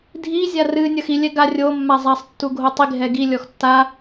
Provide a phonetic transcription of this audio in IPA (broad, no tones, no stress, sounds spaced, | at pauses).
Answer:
dʱ i zʲ a r ɨ nʲ ɐ x i lʲ ɛ ɡ a rʲ o mː a zˤ a sˤ tː u ɡʱ o tˤ i ɡʱ ɛ ɡ i lʲ ɔ x tː a